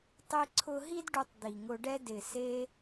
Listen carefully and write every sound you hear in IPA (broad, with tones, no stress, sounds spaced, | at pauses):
tˤ i˧ ǀʰ ʊ˧ ɦ i˦ d ɖ u˧ tˤ d̪ i˨ ŋ ʊ˧ ɖ ɛ˦ d ɪ˨ s e˧